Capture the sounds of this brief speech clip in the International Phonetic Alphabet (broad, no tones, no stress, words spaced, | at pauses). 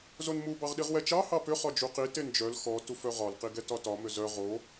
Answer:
zonmu bɑʁɗiʁwɛt͡ʃɑ hɑpʏ χɒd͡ʒuqi tend͡ʒœl xɔ tufœʁɒl qiɡɛtɒtɒ mʏzœ ʁo